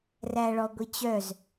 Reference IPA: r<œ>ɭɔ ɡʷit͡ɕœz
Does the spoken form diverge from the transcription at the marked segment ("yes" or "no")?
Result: yes